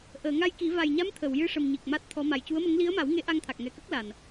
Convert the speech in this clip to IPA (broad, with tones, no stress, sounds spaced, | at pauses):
ʔ əː˨˩˨ ŋ a˧ j k i˨˩˦ v a˨˩ j ɲ a˧˥ m t̪ʰ ə˨˩˨ w j ɨ˧˥ ʂ ə˨˩ m ɲ i˨˩ k̚ m a˦˥ t̚ t̪ʰ ɔ˧˥ m a˨˩ j c u˧˥ ə̯ m ə˧˥ ŋ l i˧˥ ə̯ m a˨˩˦ w ŋ e˧˥ ʔ a˧ ŋ t̪ʰ a˨˩ k̚ ŋ ɛ˨˩ k ə˦˥ k̚ l a˨˩ n